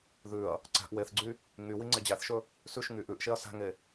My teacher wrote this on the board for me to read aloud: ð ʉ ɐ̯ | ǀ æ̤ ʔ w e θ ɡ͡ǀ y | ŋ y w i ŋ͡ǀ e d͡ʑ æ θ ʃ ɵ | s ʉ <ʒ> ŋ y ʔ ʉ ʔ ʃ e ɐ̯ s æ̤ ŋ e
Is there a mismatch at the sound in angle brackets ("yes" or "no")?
yes